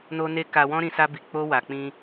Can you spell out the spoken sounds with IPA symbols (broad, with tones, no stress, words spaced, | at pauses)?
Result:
no˦ne˦ ka˧wɔ̃˦ɾĩ˧ sa˦bi˧ k͡po˦wa˧ k͡pĩ˧